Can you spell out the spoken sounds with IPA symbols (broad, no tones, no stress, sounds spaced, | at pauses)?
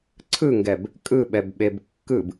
ǀʰ ɯ ŋ ɡ ɛ b | kʼ ɯ ɓ ɛ b ɓ e b kː ɯ b